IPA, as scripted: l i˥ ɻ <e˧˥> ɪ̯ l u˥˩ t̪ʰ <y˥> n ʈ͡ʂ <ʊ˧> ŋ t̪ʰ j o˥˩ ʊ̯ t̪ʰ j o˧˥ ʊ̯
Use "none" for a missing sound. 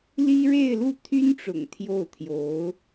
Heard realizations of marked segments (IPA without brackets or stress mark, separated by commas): e˥˧, y˥, ʊ̰˨˩